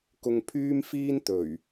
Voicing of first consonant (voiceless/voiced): voiceless